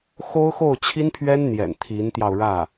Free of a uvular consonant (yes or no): yes